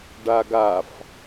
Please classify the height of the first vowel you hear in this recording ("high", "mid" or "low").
low